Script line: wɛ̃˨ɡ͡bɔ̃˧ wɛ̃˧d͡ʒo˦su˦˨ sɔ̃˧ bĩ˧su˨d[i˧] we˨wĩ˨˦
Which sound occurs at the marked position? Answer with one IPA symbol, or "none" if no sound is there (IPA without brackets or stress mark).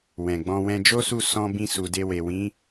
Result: e˧